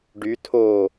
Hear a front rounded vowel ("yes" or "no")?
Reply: yes